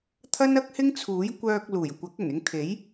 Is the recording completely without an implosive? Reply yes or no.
yes